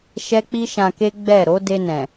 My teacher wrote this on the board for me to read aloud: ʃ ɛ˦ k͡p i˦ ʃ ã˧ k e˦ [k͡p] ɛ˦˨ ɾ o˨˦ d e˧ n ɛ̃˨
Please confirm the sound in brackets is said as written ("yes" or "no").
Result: no